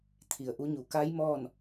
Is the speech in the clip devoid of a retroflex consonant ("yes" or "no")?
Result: yes